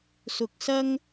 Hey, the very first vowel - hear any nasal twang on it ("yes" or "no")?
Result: no